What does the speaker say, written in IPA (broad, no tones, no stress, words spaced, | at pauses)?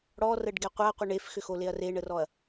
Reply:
ɽɔrəɖɡɛ qʷaqʷə ɳefxʏxoleɐ̯ reɳərɔɐ̯